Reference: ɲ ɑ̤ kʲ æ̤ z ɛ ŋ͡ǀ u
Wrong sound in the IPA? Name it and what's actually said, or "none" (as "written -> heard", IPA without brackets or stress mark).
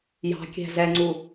ɲ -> j